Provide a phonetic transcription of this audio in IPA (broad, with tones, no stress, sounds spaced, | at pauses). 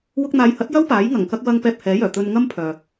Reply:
w ʊ˧ k̚ n̪ aː˨˧ j h ɐ˨˥ t̚ j ɐ˥ w p aː˨˥ j ŋ ɐ˨˩ ŋ k ɐ˧ k̚ w ɐ˧ ŋ p ɛː˧ p̚ h ɛː˨˥ j œː˨˩ t̪ ɵ˧ n ŋ ɐ˥ m pʰ œː˨